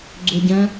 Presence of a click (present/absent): present